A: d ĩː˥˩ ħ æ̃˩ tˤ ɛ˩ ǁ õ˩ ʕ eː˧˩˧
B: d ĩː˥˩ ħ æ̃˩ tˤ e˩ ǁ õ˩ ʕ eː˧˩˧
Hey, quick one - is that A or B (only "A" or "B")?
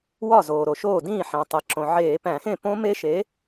B